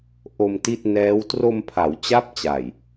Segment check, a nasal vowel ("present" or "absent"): absent